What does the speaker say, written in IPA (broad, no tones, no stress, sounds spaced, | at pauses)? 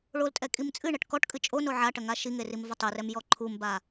ɭ o l tʼ ɛ kʼ i m t͡sʼ ɨ ɳ ɐ ʈ k ɔ ʈ kʼ ɨ t͡ʃʼ o n o ʕ a ʈ ɐ ŋ a ʃ i ŋ e r i m v ɐ tˤ ɨ r ɛ m j ɔ ǃʰ u m b a